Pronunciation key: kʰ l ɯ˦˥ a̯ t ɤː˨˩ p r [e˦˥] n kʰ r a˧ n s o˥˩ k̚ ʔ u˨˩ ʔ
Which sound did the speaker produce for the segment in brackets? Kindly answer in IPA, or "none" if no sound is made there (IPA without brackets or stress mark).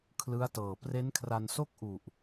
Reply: e˦˥